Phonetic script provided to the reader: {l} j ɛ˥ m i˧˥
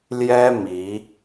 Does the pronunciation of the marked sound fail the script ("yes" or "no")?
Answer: no